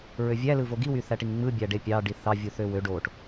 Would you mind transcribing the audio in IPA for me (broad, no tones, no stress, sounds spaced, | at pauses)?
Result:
ɹ ø vʲ æ l ɯ v o ɡ i w y θ æ ʈ i ŋ ŋ͡m ɯ bʲ æ ɖ e pʲ ɑ ɖ i θ ɑ vʲ u θ ø w ø ɖ o ʈ